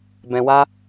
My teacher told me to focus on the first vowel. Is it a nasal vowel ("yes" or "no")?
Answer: yes